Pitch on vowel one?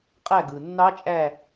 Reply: falling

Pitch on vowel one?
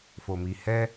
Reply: low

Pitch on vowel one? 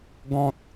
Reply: high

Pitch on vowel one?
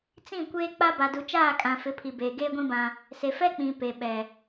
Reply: falling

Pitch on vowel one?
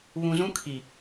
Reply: low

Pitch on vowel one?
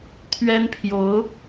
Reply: high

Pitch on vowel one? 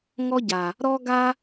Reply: high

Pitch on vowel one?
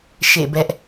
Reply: falling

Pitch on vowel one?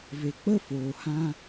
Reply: low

